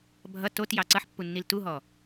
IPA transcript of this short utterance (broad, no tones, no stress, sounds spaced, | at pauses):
bʱ ʌ t o t j ɑ ǀ ʌ ħ pː u nː i l t u ɦ ɔ